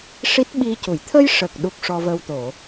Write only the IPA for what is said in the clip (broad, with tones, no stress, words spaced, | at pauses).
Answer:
ʂi˦˥t̚ɓi˧cu˨˩˨j t̪ʰə˧jʂə˨˩k̚ ɗu˦˥k̚ʂɔ˧və˧w t̪o˨˩˨